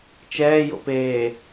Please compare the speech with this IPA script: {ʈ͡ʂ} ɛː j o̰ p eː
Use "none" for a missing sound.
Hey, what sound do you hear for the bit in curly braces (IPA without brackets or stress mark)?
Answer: t͡ʃ